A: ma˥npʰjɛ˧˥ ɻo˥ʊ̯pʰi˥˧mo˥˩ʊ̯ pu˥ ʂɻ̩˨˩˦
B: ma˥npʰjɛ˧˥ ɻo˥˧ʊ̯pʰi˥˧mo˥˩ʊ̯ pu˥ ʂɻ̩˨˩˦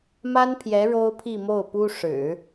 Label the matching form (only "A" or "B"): A